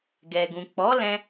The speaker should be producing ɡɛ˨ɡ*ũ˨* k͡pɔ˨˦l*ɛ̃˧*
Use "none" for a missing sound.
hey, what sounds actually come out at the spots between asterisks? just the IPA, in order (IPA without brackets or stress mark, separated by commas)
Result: ũ˨, ɛ̃˧